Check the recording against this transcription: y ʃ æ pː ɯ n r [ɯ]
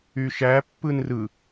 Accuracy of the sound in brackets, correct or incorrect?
correct